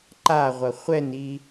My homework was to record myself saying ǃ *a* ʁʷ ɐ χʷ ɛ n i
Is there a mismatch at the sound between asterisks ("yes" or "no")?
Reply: no